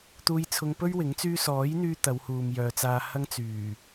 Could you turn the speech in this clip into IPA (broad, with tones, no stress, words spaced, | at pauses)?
t̪uː˧jt͡sʰʊ˧ŋ pɵ˥ɥwɪ˨˥ŋ t͡syː˧sɔː˨˥jn̪yː˧ t̪ɐ˨˧whuː˨mjœː˨t͡saː˧ hɐ˥ŋt͡syː˨˩